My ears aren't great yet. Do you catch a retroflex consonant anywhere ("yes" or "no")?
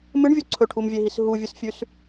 yes